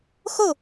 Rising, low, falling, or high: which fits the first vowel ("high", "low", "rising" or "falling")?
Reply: falling